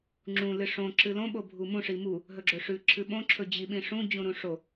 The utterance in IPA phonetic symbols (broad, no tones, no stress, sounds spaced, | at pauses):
ŋ͡ǁ ũ l ɨ ʂ õ ǁ ɨ l õ ɓ o bʱ u m ũ ʂ i m u | ɦ ɵ ɡ͡ǁ ɵ ʂ ʉ ǁʰ ɨ ɓ õ ǁʰ ɵ d͡ʑ i ɓ ĩ ʂ ũ d͡ʑ ũ ɾ ũ ʂ o